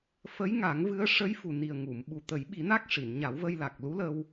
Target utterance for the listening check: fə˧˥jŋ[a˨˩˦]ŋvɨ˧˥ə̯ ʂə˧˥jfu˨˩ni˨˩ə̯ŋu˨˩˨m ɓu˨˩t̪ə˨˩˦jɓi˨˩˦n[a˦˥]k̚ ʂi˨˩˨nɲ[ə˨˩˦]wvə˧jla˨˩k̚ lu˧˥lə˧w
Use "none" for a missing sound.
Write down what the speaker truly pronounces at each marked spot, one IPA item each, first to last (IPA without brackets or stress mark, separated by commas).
a˨˩˦, a˦˥, a˨˩˦